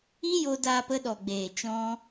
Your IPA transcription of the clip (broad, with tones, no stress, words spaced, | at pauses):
i˦jo˧daː˧p ə˧ɗɔ˨ɡ͡beː˨ t͡ʃɔ̃˦